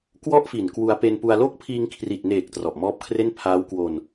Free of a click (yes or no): yes